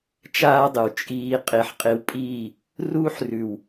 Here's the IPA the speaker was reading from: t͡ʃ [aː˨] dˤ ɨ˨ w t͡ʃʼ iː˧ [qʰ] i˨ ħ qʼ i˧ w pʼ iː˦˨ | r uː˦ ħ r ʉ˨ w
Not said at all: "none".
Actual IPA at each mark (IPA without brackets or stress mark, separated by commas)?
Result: aː˦, qʼ